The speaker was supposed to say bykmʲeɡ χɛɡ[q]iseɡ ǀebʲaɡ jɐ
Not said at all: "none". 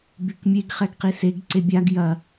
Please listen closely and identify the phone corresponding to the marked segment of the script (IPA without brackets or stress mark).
q